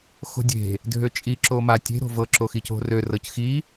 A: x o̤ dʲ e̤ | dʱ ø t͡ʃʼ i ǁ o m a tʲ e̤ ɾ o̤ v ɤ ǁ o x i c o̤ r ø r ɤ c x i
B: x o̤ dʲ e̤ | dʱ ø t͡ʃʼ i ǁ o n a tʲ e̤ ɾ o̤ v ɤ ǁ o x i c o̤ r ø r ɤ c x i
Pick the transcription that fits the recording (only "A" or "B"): A